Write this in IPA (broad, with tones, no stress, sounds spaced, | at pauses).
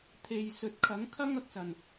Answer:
t̪ʰ e˨ j s ɵ˨ t̚ kʰ ɐ˨˥ ŋ kʰ ɐ˥ ŋ ɐ˨ k̚ s ɐ˨˩ n